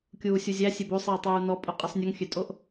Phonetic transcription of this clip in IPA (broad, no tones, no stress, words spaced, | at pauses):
kʲuːsʲuzʲæ sʲebosˤiː tˤuːnɔpʼu qʼisˤnʲuŋxʲøtʼoʔ